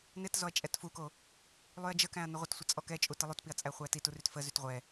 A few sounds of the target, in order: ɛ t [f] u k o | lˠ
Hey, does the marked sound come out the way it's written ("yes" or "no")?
yes